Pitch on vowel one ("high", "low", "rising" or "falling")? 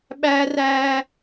high